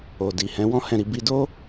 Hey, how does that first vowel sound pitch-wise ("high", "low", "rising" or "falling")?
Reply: low